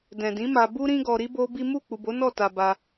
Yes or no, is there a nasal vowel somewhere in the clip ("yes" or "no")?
yes